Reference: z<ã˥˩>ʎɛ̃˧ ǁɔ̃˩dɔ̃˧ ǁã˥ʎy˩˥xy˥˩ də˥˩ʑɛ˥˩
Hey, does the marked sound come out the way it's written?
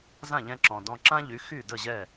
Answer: yes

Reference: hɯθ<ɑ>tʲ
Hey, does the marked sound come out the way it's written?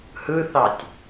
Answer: yes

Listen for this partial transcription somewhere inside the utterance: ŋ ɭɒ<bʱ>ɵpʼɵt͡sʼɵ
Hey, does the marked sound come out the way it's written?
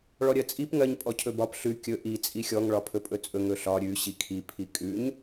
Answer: no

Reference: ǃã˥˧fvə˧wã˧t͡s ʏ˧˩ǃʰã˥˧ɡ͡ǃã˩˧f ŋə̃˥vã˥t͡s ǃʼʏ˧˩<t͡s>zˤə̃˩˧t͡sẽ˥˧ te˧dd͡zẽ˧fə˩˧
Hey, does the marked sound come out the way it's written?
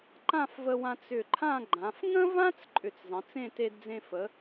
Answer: yes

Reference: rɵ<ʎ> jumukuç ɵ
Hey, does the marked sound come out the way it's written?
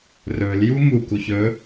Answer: no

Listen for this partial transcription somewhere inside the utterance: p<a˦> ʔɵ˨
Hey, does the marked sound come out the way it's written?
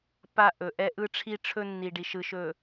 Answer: yes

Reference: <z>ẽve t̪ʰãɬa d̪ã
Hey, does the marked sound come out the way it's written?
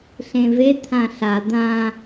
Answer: no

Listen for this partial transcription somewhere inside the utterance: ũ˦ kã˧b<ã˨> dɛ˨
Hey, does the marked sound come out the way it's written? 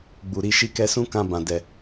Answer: yes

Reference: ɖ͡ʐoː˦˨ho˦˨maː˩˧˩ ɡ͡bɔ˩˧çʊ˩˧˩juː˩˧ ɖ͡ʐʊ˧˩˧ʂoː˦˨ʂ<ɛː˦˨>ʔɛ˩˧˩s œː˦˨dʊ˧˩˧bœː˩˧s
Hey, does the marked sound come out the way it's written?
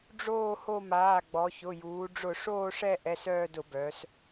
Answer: no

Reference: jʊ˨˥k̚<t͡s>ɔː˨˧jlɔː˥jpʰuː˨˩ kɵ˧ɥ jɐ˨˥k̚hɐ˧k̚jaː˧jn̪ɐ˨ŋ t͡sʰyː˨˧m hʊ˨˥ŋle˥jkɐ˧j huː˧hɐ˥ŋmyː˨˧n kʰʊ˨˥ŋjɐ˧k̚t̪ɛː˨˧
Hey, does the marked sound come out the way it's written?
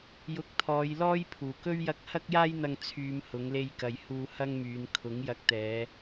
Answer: no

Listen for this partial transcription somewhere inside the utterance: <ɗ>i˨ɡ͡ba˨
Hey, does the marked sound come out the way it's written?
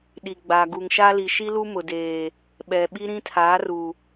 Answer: yes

